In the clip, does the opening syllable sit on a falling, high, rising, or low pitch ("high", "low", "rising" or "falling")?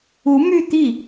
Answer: rising